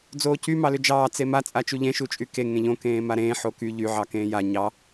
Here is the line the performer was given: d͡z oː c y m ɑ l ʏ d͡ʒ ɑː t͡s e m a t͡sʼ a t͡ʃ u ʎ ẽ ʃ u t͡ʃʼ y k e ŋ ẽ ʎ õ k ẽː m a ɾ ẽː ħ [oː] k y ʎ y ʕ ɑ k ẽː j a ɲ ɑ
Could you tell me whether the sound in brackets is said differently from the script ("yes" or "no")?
yes